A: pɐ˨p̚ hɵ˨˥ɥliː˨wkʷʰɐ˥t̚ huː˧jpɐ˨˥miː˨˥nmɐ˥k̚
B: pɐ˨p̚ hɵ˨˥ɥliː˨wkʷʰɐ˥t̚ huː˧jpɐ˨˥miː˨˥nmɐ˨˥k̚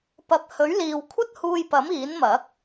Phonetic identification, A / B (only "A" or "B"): B